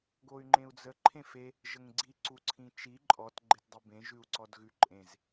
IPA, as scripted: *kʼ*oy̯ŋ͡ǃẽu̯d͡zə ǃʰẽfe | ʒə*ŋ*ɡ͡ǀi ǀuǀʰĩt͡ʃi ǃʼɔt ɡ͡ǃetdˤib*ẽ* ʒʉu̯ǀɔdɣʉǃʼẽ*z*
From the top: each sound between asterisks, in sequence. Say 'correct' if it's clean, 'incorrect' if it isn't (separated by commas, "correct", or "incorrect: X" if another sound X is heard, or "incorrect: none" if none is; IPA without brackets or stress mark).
incorrect: ɡ, correct, correct, correct